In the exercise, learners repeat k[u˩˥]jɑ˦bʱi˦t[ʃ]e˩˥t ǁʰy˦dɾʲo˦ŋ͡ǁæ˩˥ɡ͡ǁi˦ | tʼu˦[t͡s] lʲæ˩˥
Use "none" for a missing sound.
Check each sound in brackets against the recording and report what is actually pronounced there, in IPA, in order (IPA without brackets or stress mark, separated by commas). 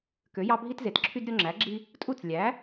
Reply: ø˩˥, z, t͡s